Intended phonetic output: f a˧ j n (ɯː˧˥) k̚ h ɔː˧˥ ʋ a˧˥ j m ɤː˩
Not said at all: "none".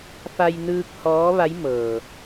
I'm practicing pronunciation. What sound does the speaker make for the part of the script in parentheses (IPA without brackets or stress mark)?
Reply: ɯː˧